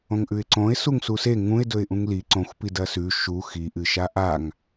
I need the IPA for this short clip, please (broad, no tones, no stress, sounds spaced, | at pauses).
õ ŋ ʔ ʉ ɪ̯ ǀ õ ɪ̯ s u ŋ s u s e ŋ ũ ɪ̯ d ɵ ɪ̯ ʔ ũ ŋ l i ǀ õ xʷ p i d ɐ s ʉ ʃ u x i ʔ ɨ ʃ a ʔ a ŋ